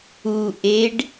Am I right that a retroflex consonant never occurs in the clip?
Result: no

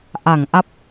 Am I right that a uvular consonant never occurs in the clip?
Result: yes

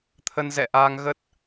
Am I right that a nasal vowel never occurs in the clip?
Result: yes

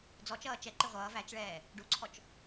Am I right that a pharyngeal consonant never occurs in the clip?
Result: yes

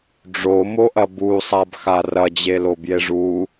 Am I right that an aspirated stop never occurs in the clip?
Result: yes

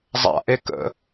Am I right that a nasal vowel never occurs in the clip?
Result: yes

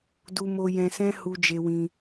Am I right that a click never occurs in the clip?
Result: yes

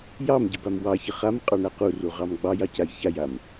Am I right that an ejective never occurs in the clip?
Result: no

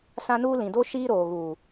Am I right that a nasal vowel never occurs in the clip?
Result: no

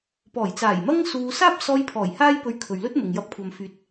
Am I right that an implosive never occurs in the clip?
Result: yes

